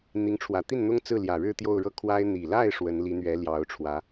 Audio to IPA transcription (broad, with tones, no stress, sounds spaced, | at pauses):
n̪ i˧˥ ŋ ʈ͡ʂʰ w ä˨˩ t̪ i˥˩ n n̪ ʊ˥ ŋ t͡s ɹ̩˥˩ l j ä˨˩ ɻ ɻ̩˥˧ t̪ j o˥˧ ʊ̯ ɻ ɤ˥˩ kʰ w a˥ ɪ̯ n̪ i˨˩ l a˥˩ ɪ̯ ʂ w ə˧˥ n l i˧˥ n̪ ɥ ɛ˧˥ l j ɑ˧˥ ʊ̯ ʈ͡ʂʰ w ä˧˥